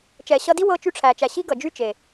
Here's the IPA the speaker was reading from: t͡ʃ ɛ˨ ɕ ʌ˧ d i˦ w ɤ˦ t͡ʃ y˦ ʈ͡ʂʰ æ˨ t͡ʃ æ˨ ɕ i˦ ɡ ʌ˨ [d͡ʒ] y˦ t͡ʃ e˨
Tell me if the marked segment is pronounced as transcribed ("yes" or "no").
yes